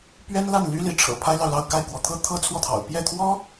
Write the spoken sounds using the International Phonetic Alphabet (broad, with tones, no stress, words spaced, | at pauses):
pɥɛ˥nla˥˩nly˥ li˧˥ ʈ͡ʂʰɤ̰˨˩pʰa˥ɪ̯lɑ˨ʊ̯lɑ˥˧ʊ̯ ka˥˩ɪ̯kwɔ˧˥t̪ʰɤ˥ t̪ʰɤ˥t͡sʰwɔ˥˩t̪ʰɑ̰˨˩ʊ̯ pjɛ˥˩t̪ʰwɔ˥